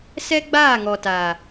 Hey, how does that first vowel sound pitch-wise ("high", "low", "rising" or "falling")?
high